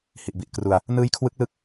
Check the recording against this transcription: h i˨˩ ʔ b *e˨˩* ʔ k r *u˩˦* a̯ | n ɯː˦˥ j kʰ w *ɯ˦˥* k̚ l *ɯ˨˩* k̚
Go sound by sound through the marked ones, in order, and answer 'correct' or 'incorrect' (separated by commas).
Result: incorrect, incorrect, correct, incorrect